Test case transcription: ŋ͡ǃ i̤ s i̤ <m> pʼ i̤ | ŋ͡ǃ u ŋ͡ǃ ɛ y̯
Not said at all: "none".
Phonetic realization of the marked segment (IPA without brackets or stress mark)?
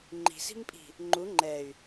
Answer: m